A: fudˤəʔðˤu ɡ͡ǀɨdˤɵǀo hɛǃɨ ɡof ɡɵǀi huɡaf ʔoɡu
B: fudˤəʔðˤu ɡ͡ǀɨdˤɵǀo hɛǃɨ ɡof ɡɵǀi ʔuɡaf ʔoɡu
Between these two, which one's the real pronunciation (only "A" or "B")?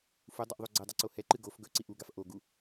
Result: B